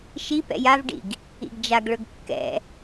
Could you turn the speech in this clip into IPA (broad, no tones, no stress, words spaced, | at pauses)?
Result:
ʃi pɛ̰javɖḭɡ | ḭɡd͡ʒaɡɭɵɡ kːɛ̰